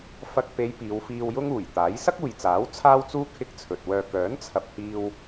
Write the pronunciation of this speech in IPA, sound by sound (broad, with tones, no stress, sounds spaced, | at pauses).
f ɐ˨ k̚ p e˨˧ j p iː˨˧ w f iː˧ w j ʊ˥ ŋ uː˨˩ j t̪ aː˨˥ j s ɐ˥ k̚ uː˨ j t͡s aː˨˥ w t͡sʰ aː˥ w t͡s uː˥ kʰ ɪ˥ k̚ t͡sʰ ɵ˨ t̚ w œː˨ k œː˨˥ n t͡sʰ ɐ˨ p̚ h iː˧ w